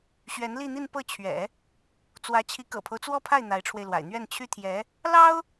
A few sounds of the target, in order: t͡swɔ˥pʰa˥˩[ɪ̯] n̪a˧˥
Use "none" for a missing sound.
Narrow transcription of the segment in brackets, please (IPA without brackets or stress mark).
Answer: ɪ̯